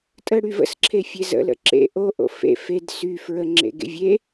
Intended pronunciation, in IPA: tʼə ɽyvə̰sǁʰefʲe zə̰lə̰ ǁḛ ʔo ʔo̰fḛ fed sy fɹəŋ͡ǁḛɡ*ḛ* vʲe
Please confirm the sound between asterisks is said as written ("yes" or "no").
yes